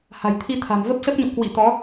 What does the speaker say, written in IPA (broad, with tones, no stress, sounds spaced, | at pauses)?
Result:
h a̤˨˩ j t̪ʰ i˧ t̪ʰ a̤˨˩ m v ə˦˥ p̚ s ə˦˥ p̚ ɲ o̰˧˨ k w ḭ˧˨ t̪ ɔ˨˦